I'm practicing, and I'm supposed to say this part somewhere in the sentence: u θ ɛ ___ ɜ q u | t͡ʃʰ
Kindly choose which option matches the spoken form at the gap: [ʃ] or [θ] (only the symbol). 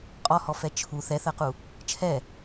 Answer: θ